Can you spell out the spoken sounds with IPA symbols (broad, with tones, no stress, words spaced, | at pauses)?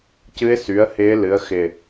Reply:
cɨ˧˥ɪ̯sy˩˥ə̯hɪː˧˥ lɨ˩˥ə̯xɪ˧˩